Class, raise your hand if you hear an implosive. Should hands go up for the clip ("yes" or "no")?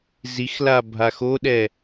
yes